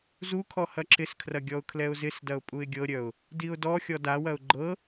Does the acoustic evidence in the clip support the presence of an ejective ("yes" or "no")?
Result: yes